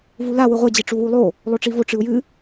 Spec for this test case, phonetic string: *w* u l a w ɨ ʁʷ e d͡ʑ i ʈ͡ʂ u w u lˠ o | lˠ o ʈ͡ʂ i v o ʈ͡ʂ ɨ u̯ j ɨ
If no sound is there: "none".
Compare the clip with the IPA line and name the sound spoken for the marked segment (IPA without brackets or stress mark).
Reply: v